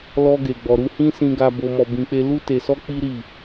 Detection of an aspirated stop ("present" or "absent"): absent